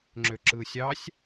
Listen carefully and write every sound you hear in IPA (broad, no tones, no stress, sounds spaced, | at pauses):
ŋ͡ǁ ø ǁ ɯː sʲ ɑ sʲ